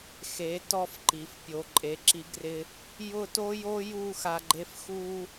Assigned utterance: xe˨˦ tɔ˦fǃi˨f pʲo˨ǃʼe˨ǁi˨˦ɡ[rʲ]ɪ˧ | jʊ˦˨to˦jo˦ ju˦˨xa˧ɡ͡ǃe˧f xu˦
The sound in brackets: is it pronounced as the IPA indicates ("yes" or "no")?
no